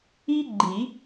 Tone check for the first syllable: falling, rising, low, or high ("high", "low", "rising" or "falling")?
high